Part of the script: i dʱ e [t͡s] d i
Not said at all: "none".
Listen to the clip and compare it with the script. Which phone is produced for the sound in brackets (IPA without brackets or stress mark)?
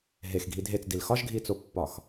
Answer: t͡s